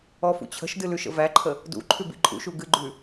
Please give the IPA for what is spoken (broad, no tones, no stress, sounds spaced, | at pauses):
ɔ f ṵ t͡ɕʰ ə̤ ʃ d ɨ l ʉ ʃ ə̰ v æ ǃʰ ə | d ṵ ǃʰ ʉ b ḭ ǃʼ ṵ ʃ u ɡ ɨ ɡ͡ǃ ʉ